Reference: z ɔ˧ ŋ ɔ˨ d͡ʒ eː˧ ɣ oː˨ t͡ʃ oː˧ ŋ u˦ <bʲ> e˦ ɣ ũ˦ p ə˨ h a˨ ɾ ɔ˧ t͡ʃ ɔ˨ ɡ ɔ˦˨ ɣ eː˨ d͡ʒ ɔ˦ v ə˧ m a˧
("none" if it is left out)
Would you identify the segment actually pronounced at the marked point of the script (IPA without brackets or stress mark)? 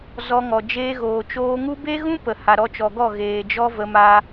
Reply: b